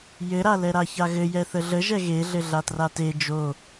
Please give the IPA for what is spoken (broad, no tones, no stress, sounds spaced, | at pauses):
j ɘ ɾ a l ɛ ɾ a ç a ɣ ɘ j ɛ θ ə ɮ ə ʒ ɛ ɣ e ɮ ɘ ɮ a t r a t e d͡ʒ o